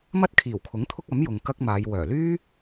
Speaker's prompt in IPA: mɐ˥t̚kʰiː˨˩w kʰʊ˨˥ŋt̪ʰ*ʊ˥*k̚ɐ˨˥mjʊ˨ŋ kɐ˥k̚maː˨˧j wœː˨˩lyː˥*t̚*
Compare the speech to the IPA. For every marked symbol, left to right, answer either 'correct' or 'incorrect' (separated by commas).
correct, incorrect